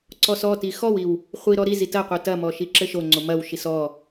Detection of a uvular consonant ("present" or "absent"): present